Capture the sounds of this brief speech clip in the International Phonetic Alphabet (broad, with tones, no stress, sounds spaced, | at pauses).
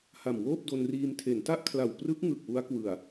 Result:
h a˨˩ m w oː˥˩ p̚ d o˧ n r iː˧ m tʰ e˩˦ n t a˥˩ ʔ kʰ l a˨˩ w p r ɯ˦˥ k̚ ŋ ɯ˨˩ k̚ w u˦˥ a̯ k w ɯ˨˩ a̯